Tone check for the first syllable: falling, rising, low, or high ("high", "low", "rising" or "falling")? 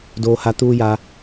low